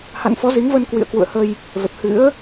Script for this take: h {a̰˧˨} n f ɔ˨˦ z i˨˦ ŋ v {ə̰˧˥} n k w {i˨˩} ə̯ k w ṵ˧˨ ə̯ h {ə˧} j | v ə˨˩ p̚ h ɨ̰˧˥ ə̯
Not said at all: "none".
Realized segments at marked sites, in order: a̰˧˨, ə˧, ḭ˧˨, ə˧

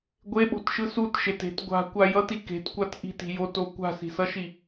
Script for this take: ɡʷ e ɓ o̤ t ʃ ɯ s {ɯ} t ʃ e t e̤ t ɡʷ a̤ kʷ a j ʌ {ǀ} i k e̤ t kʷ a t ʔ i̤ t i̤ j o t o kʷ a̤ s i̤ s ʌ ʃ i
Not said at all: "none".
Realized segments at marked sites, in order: u, t

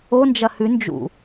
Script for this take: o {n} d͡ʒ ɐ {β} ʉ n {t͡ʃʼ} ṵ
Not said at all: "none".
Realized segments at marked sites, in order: n, h, d͡ʒ

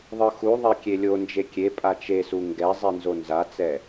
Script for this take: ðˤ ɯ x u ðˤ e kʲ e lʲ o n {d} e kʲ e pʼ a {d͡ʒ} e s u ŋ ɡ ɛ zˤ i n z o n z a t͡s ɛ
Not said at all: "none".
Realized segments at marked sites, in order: d͡ʒ, t͡ʃ

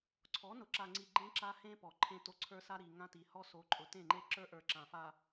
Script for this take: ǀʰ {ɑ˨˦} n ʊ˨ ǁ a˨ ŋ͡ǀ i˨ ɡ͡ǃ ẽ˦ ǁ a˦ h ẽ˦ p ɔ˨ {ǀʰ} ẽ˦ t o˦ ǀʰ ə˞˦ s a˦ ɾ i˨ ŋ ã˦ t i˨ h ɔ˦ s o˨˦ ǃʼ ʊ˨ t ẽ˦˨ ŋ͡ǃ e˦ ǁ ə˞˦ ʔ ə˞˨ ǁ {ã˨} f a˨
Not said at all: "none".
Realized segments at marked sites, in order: ɔ˨˦, ǃʰ, ã˨

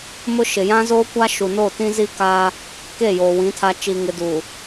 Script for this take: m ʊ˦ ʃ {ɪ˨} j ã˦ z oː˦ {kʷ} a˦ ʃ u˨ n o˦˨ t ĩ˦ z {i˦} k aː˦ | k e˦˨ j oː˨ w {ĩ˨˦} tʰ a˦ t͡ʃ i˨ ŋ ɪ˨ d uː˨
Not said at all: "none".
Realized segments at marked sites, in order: ɪ˨, kʷ, i˦, ĩ˨˦

